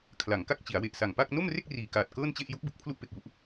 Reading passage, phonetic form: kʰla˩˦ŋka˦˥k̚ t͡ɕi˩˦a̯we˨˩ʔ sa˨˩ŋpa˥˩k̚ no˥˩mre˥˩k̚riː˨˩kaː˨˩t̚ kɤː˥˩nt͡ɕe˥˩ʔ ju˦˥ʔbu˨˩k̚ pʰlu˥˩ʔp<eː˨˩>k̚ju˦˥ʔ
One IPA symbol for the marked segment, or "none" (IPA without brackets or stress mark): e˨˩